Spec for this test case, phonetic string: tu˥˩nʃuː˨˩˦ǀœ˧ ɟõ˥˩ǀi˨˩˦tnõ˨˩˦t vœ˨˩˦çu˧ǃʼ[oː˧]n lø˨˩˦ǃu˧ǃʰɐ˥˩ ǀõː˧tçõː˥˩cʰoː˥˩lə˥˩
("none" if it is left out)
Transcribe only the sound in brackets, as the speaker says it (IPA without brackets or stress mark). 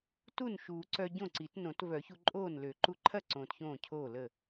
oː˥˩